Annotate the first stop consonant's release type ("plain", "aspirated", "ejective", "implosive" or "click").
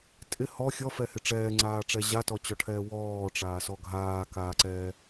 ejective